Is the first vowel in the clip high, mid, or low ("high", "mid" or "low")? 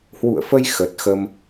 high